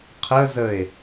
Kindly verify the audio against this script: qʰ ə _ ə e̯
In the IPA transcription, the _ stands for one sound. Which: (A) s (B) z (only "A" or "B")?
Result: B